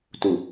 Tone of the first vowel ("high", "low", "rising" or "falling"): low